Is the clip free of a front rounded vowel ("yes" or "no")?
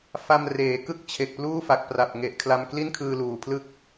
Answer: yes